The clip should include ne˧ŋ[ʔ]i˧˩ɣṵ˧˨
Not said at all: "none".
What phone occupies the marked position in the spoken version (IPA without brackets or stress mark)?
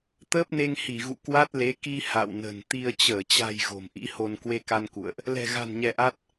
h